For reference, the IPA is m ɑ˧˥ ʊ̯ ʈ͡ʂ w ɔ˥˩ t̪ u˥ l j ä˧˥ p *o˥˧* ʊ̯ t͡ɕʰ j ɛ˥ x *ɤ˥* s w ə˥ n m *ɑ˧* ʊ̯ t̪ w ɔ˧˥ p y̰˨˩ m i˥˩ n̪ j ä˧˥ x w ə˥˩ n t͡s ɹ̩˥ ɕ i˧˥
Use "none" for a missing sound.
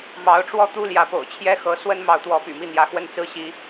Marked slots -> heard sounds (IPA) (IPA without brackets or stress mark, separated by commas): o̰˨˩, ɤ˧˥, ɑ˧˥